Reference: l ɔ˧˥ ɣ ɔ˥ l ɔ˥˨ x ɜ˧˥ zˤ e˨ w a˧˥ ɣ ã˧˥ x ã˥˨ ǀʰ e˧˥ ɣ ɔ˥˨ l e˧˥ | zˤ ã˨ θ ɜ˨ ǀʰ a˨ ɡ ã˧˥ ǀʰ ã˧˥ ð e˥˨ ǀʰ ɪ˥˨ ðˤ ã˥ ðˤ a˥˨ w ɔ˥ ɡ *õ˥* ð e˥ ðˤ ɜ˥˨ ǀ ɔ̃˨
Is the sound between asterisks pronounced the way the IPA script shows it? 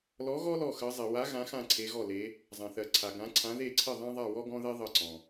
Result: no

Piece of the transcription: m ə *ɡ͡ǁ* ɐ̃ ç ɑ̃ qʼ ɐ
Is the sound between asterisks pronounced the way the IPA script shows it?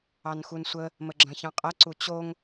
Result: yes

